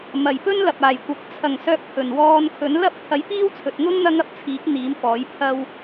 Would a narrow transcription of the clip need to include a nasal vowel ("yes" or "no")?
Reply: no